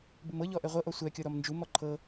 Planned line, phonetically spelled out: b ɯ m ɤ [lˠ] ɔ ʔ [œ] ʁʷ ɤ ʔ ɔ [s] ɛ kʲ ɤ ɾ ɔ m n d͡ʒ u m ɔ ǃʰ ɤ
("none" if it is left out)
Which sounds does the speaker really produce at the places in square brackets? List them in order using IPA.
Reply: ʎ, ɛ, sʷ

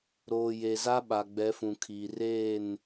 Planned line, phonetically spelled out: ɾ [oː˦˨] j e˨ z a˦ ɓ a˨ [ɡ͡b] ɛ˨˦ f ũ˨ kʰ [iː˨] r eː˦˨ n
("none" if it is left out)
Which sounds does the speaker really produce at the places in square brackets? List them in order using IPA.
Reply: oː˨, ɡ͡b, iː˨

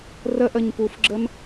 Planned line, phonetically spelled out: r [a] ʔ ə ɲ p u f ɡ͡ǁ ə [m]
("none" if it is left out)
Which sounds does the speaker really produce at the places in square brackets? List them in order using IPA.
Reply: ə, m

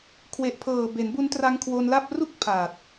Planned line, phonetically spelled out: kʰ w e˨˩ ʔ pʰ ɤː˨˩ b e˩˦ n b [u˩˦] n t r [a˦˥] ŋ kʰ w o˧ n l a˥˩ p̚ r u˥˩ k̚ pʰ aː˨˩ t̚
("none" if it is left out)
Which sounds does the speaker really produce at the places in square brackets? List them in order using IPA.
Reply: u˦˥, a˦˥

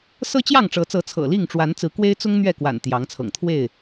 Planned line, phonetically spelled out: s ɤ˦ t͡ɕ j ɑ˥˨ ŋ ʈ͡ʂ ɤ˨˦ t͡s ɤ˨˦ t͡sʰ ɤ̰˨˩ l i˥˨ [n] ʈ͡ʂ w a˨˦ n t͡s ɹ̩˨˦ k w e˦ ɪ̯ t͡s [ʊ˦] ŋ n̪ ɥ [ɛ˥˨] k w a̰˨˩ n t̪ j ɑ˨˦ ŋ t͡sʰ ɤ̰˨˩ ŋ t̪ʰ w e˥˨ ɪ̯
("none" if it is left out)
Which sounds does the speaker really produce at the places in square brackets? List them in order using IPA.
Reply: ŋ, ʊ˦, ɛ˥˨

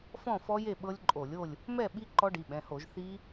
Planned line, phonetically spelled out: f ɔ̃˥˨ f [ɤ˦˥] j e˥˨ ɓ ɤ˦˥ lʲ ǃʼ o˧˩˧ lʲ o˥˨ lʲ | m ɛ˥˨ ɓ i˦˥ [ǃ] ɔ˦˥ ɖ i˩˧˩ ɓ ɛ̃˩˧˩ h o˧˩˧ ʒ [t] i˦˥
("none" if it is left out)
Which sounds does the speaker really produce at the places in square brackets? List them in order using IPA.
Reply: ɔ˦˥, ǃ, θ

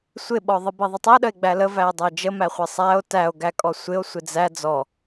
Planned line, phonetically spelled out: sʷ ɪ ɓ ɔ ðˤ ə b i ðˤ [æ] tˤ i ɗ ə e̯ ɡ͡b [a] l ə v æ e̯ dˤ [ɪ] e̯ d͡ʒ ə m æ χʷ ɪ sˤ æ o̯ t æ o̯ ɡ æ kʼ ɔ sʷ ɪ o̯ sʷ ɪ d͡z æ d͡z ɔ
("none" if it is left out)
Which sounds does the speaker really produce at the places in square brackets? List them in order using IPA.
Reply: ə, æ, ə

